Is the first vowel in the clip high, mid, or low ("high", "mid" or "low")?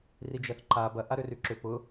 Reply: high